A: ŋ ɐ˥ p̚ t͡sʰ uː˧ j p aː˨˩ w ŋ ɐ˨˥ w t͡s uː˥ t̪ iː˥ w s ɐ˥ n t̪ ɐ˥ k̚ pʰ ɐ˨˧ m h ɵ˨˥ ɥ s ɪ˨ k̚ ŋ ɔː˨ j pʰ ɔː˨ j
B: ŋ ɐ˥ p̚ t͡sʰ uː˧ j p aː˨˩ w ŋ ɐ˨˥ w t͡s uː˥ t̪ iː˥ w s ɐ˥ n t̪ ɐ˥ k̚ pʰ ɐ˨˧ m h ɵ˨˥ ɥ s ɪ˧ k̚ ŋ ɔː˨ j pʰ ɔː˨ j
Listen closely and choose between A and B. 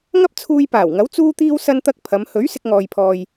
B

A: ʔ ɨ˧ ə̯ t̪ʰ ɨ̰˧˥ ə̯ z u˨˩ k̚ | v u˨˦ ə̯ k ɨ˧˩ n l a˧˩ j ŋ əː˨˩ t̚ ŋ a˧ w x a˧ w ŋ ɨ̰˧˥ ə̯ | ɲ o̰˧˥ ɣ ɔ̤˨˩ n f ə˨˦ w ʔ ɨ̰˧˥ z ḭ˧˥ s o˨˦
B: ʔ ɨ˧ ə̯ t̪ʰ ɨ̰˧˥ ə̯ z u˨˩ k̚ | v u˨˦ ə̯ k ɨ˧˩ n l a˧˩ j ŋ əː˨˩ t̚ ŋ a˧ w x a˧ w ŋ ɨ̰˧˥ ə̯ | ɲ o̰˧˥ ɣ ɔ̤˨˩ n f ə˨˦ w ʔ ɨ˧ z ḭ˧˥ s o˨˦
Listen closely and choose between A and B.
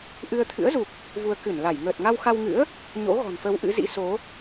A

